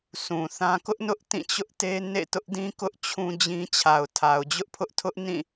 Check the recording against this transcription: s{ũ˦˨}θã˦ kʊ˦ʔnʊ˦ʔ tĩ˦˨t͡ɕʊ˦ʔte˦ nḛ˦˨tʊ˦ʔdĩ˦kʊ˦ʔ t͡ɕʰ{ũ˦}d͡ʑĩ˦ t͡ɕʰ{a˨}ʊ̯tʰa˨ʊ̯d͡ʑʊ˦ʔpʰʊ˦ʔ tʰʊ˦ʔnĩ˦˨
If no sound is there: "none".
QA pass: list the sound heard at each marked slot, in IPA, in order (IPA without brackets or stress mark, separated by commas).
ũ˨, ũ˦, a˨